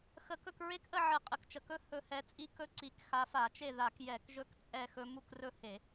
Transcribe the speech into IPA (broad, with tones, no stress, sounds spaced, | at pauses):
x ə˧˩˧ k ɵ˥˨ k ɹ e˦˥ k ʔ ə˥˨ ʕ ə˧˩˧ qʼ ə˨˩ k t͡ʃ ə˨˩ k ɵ˦˥ h ɵ˨˦ h ɛ˨˦ t͡sʼ i˦˥ k ɵ˦˥ ǀ i˨˩ k x a˨˦ f a˧˩˧ t͡ʃ e˥˨ ð a˧˩˧ k j ɛ˧˩˧ k ʒ ɵ˦˥ k t͡sʼ ɛ˥˨ x ɵ˦˥ m u˥˨ k r ɵ˥˨ h e˧˩˧